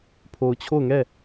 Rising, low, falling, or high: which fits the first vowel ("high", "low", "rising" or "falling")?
low